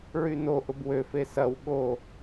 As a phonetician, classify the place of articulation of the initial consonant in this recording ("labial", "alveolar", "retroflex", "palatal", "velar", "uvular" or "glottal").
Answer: alveolar